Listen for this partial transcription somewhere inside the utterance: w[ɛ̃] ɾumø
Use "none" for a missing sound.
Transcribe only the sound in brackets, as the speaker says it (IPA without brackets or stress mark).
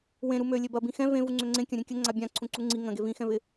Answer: ẽ